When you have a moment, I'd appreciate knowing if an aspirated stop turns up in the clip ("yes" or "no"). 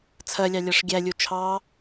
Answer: yes